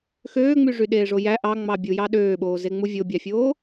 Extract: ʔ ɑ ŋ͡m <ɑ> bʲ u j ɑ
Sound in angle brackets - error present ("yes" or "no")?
no